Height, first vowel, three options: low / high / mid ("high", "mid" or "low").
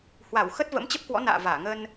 low